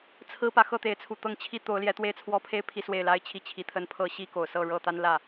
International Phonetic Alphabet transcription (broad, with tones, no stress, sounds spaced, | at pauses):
t͡sʰ ɹ̩˦ p ä˨ x ɤ˥˨ t̪ e˨˦ ɪ̯ t͡sʰ u˨˩ t̪ ɤ˥˨ ŋ t͡ɕʰ i˦ t̪ o˨˦ ʊ̯ l j ɛ˨˦ t̪ w e˥˨ ɪ̯ t͡sʰ w ɔ˥˨ pʰ e˦ ɪ̯ pʰ i˨˦ s w e˥˨ ɪ̯ l a˦ ɪ̯ t͡ɕʰ i˥˨ t͡ɕʰ i˨˦ t̪ʰ ə˦ n pʰ ɤ˦ ɕ i˦ k o˨˩ ʊ̯ s ɤ˥˨ ɻ ɤ˥˨ t̪ a˦ n l ä˥˨